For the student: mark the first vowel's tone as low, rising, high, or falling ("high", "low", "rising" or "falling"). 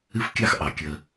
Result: high